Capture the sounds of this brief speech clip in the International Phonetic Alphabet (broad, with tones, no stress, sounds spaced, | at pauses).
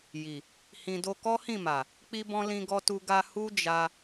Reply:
j i˨ | h ĩ˧ d o˧ k ɔ˦ h ĩ˦˨ m a˨ | k͡p i˦ b ɔ̃˦ l ĩ˦ ɡ ɔ˦ t u˧ ɡ a˧ h u˦ d͡ʒ a˧